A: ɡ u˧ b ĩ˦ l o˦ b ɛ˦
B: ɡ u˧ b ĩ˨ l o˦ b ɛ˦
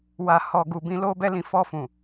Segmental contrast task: A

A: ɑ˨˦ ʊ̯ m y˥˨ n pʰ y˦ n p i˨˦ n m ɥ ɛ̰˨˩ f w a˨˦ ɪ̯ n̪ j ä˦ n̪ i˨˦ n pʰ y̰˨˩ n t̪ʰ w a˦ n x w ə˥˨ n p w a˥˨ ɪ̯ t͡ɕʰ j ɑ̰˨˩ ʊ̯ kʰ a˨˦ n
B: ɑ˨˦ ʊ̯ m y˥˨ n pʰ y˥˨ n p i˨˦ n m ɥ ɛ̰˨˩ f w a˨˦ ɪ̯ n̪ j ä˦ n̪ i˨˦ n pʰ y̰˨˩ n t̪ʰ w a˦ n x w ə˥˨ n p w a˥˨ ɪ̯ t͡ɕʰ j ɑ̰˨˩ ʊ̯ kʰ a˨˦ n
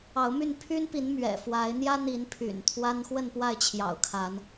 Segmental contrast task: A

